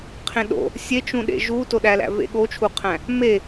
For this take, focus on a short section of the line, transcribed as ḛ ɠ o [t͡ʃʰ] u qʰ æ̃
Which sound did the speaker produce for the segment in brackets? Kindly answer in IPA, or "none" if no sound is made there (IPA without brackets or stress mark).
t͡ʃʰ